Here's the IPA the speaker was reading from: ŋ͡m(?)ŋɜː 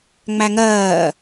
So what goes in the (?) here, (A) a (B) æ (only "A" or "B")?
B